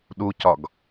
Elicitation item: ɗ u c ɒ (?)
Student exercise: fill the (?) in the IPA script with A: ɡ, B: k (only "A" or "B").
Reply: A